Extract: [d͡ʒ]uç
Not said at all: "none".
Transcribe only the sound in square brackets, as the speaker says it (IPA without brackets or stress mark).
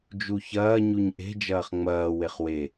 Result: d͡ʒ